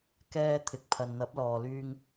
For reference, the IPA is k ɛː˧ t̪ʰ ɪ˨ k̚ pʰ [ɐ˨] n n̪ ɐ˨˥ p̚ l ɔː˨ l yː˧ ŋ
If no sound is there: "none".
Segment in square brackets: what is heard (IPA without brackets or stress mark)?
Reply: ɐ˨